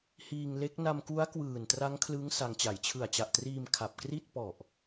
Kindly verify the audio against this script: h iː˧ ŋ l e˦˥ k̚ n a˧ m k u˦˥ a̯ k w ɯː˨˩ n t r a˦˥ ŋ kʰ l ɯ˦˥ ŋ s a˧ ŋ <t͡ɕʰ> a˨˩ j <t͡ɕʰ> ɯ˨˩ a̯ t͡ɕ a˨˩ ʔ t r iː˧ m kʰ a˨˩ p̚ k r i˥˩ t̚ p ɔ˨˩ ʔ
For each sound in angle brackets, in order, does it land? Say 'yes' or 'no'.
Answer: no, yes

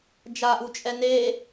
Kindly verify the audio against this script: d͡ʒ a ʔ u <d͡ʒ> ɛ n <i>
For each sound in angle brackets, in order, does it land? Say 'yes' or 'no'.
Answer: no, no

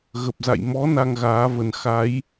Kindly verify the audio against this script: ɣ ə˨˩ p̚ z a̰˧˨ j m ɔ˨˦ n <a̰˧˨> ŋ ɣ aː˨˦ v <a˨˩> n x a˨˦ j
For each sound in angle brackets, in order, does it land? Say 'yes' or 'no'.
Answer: no, no

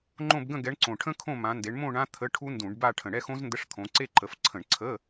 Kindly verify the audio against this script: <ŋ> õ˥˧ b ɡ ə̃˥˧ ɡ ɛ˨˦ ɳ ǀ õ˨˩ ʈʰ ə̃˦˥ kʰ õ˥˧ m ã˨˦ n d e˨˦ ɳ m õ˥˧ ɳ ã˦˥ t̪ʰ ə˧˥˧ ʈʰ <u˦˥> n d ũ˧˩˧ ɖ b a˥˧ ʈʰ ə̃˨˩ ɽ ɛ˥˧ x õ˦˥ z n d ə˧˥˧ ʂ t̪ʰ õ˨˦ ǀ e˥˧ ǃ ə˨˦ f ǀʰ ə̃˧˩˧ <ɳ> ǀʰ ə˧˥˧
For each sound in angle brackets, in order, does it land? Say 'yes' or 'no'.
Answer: no, yes, yes

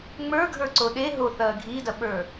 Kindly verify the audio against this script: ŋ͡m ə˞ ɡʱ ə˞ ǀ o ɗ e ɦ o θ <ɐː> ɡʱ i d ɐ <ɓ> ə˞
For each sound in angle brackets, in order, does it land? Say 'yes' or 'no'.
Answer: yes, yes

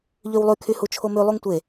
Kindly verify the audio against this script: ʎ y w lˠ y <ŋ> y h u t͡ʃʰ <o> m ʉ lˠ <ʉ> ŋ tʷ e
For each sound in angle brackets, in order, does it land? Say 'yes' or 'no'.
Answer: no, yes, no

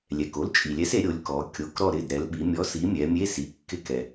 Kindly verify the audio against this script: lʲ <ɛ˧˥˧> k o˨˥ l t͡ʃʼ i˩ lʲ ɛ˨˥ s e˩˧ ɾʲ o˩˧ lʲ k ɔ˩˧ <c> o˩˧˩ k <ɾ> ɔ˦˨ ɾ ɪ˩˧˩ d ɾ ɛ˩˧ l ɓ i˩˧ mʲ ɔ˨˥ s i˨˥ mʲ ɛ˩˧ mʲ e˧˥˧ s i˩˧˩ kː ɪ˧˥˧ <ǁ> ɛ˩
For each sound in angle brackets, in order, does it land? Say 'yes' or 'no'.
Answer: no, no, yes, no

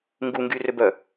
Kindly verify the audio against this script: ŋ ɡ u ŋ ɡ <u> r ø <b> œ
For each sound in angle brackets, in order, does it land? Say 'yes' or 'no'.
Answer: no, yes

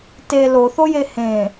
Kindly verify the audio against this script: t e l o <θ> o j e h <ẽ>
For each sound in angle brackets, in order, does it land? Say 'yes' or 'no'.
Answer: yes, yes

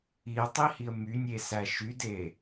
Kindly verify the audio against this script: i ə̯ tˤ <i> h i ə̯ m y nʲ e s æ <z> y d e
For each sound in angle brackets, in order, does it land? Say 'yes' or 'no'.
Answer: yes, no

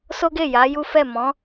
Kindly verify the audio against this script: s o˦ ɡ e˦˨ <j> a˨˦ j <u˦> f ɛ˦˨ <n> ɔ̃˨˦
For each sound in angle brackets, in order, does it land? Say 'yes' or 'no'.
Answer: yes, yes, no

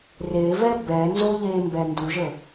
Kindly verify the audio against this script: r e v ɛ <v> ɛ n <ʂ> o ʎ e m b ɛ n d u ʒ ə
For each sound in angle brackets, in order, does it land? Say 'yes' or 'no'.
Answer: no, no

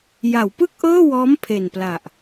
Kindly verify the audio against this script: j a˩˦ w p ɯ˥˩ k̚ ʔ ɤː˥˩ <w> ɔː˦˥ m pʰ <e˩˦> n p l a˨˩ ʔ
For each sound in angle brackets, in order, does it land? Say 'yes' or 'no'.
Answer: yes, no

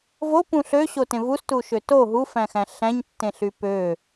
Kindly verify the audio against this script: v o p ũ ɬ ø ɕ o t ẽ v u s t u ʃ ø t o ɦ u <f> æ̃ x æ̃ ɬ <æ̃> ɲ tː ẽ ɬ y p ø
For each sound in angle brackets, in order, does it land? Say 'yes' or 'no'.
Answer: yes, yes

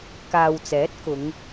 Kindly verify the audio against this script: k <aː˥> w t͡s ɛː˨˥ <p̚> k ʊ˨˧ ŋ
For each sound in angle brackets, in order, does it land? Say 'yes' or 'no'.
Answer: no, no

